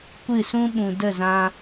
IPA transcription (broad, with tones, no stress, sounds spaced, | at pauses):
kʷ ɨ˦˨ s ũ˦ ɓ ũ˨ d ə˦˨ z ã˧